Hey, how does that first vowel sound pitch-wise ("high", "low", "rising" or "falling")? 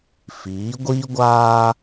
rising